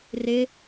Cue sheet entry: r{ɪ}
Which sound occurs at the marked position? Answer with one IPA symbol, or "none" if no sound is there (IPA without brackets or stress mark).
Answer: ɪ